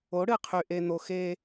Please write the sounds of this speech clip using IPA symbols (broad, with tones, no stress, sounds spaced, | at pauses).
o˨˦ ɽ ɨ˨ qʰ y˨ ʔ e˨ n̪ o˨ x e˦